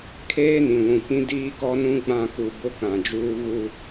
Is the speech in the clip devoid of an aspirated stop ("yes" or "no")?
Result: no